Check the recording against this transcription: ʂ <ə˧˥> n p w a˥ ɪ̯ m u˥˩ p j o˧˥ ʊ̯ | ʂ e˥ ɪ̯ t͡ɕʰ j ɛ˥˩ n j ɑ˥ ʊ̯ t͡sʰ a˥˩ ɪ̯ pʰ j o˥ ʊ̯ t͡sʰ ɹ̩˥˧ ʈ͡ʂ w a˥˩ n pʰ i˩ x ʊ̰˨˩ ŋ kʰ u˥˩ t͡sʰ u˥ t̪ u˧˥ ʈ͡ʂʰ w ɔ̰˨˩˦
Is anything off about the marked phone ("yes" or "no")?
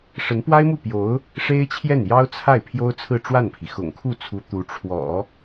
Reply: no